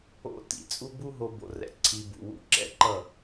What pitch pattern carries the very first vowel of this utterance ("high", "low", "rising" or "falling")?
falling